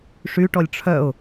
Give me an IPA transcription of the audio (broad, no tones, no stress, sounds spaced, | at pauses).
ʂ y ʈ ɔ lʲ ʈ͡ʂʰ œ ʊ̯